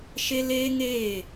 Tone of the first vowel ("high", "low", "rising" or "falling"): high